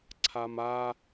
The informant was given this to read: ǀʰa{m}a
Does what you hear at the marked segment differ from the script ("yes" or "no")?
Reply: no